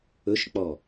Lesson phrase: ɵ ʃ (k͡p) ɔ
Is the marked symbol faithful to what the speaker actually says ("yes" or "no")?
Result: yes